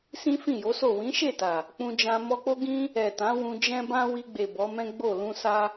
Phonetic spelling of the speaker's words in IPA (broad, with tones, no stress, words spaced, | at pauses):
sĩ˦fĩ˦˨jo˨˦so˦˨ wĩ˨˦ʃe˦˨ta˨ | k͡pũ˧d͡ʒã˧ mɔ˧k͡po˦ɡĩ˦ | ɛ˨tã˨˦ wũ˧d͡ʒɛ̃˦bã˦ wi˧ɡ͡be˨ bɔ˨˦mɛ̃˦ ɡ͡bo˦˨ lũ˧sa˧